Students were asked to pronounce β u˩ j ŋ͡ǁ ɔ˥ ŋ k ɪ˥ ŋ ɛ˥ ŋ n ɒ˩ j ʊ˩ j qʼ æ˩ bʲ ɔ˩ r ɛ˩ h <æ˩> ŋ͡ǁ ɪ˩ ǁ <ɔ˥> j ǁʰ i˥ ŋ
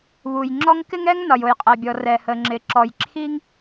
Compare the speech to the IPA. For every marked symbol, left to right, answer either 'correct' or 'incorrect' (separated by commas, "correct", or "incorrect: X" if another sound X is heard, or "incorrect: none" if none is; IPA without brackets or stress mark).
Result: incorrect: ə˩, incorrect: ɔ˩